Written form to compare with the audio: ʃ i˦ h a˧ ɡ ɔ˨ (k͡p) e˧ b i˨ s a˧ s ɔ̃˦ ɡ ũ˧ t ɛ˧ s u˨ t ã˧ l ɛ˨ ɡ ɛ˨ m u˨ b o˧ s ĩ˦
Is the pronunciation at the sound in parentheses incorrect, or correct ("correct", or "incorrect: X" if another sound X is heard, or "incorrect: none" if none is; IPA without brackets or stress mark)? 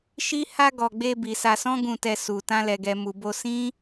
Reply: incorrect: ɡ͡b